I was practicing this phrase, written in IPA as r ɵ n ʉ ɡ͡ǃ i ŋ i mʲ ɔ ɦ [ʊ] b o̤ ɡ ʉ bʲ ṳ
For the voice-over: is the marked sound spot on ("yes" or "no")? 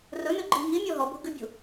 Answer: no